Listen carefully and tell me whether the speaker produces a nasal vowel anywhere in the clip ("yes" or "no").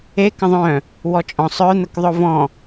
yes